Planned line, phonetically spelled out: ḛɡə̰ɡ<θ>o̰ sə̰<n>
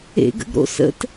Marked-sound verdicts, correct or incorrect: incorrect: ɾ, incorrect: t

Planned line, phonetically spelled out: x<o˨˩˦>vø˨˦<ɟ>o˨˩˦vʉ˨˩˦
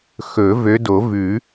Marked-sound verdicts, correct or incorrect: incorrect: ɵ˨˩˦, incorrect: d

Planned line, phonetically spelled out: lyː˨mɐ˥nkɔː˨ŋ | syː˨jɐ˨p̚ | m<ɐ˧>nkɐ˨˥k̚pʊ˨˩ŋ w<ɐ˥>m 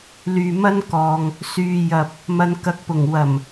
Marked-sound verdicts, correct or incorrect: correct, incorrect: ɐ˨˩

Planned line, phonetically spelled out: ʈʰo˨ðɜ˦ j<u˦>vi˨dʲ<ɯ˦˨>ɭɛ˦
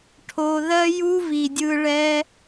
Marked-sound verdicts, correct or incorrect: correct, incorrect: ɯ˧

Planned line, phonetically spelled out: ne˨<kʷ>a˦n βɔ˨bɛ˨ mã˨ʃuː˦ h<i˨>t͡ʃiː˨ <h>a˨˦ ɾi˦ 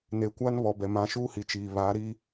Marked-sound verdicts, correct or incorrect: correct, correct, incorrect: β

